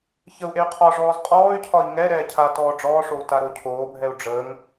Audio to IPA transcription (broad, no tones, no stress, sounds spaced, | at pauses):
ç ə u̯ ʔ e y̯ qʰ ɒ ʐ ɔː z qʼ ɔː y̯ cʰ ɒ i̯ ŋ ɛ ɾ ɛː cʰ a t ɔː ɖ͡ʐ ɔː ʂ o u̯ t a ɾ o cʰ oː bʱ ɛ u̯ ɖ͡ʐ əː ŋ